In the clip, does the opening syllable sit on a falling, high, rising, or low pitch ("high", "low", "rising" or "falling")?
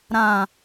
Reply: low